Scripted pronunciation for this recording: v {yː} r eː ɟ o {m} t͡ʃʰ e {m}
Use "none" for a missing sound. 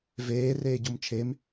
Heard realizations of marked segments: eː, m, m

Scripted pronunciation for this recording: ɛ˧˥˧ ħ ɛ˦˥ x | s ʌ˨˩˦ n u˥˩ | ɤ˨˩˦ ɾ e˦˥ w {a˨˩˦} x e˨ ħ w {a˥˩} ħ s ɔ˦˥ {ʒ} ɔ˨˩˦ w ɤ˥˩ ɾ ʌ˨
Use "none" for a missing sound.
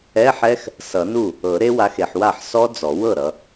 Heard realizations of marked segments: a˨˦, a˥˩, d͡z

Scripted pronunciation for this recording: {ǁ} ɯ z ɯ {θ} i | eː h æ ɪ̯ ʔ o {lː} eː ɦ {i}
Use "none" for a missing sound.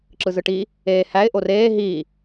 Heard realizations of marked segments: ǁ, ʈ, r, iː

